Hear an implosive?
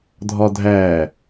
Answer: no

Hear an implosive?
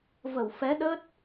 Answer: yes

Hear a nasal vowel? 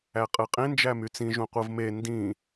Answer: yes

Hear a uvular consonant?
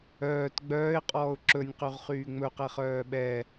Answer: yes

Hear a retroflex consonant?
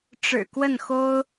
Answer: yes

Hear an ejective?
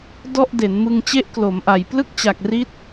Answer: no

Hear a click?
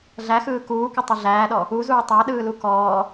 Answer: no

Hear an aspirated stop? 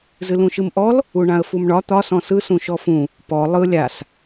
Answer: no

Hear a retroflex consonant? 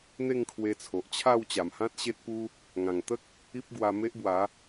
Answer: no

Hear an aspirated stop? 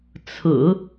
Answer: yes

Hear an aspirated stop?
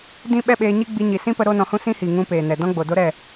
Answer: no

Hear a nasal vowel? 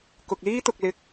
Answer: no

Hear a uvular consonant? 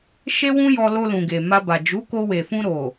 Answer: no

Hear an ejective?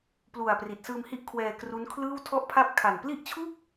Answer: no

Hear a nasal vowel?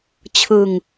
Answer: no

